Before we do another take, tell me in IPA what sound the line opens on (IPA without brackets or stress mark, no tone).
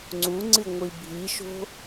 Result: ŋ͡ǀ